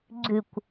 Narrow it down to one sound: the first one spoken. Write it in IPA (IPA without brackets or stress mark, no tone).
ɡ͡ǀ